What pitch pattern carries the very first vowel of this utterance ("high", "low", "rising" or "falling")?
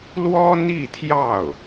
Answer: high